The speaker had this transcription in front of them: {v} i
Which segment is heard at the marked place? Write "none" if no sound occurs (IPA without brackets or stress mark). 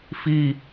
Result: f